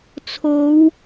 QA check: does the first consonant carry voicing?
no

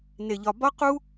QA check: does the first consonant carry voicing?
yes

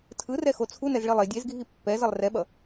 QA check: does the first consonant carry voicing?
no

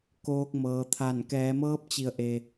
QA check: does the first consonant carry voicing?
no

